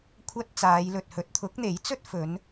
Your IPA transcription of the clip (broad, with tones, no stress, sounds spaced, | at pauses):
kʷʰ ɐ˥ t̚ t͡s aː˨˧ j l ɵ˨ t̚ h ɵ˨˥ t̚ t̪ʰ ʊ˨˥ k̚ n̪ e˨˥ j t͡s ɵ˥ t̚ f ɵ˨˧ n